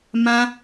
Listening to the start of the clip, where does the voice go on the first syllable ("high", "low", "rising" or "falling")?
high